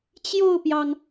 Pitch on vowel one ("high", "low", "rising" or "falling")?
falling